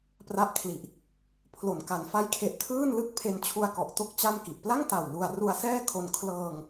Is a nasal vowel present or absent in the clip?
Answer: absent